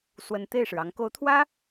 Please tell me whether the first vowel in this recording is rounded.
no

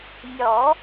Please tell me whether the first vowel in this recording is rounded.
yes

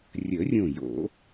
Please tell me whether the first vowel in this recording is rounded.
no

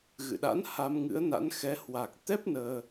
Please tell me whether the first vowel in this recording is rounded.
no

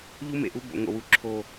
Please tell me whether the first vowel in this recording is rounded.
yes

